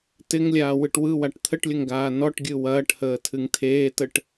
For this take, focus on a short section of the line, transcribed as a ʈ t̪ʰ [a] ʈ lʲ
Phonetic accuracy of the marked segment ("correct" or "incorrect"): incorrect